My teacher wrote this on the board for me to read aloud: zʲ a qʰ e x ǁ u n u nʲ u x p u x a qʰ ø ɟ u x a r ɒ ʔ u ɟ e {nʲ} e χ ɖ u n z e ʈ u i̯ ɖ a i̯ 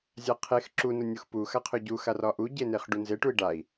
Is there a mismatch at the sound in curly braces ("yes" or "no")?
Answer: yes